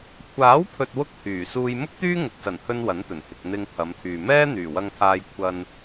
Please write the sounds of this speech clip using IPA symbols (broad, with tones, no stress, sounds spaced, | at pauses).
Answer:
kʷʰ aː˨˥ w pʰ ɵ˨ t̚ w ʊ˥ k̚ h yː˨˩ s uː˧ j m ʊ˥ k̚ t̪ yː˥ ŋ ʊ˨ k̚ s ɐ˨˩ n h ɵ˧ n w ɐ˨˥ n t̪ ɵ˨˩ n h ɪ˨ k̚ n̪ ɪ˧ ŋ pʰ ɐ˨˧ m t̪ʰ yː˨ m ɛː˥ n̪ yː˨˩ w ɐ˧ ŋ t̪ʰ aː˧ j kʷʰ ɐ˧ n